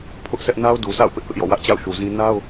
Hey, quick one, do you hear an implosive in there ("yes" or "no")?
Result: no